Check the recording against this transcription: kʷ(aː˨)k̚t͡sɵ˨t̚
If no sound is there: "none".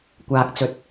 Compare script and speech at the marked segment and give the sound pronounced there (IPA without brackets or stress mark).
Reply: aː˨